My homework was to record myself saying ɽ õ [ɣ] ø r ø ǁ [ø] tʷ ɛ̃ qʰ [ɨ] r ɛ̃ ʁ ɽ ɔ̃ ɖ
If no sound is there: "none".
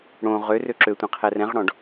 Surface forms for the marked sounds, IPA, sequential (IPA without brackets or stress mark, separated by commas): ʁ, ø, ɛ